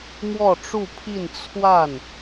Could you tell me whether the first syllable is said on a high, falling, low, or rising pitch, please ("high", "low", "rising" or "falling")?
falling